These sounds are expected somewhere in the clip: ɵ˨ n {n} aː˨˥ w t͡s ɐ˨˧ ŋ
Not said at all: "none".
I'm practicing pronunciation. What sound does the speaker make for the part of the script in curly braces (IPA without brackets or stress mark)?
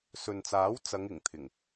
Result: t͡s